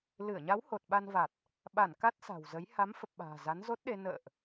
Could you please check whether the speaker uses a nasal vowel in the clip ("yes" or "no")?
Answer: no